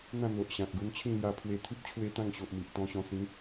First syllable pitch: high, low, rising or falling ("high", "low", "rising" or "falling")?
falling